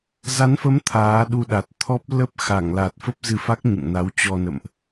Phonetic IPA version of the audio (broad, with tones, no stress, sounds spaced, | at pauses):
z a˨˦ n f ə˨˦ m t̪ʰ aː˨˦ ɗ u˧ ɗ a˨˩ t̚ t̪ʰ ɔ˦˥ p̚ l ə˦˥ p̚ x a˧˩ ŋ l a˨˩ t̚ f ə˦˥ p̚ z ɨ˧ f a˦˥ k̚ ɲ ɨ̰˧˨ ŋ n a˨˦ w t͡ɕ ɔ˧ n ə̰˧˨ m ʔ